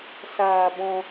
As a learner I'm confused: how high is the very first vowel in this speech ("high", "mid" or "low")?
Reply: low